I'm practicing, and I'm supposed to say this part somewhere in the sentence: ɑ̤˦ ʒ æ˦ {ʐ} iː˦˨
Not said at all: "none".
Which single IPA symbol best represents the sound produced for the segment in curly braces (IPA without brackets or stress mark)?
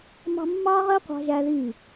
ð